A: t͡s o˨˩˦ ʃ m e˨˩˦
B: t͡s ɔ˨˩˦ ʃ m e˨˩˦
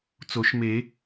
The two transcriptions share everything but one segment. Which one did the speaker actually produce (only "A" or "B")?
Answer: A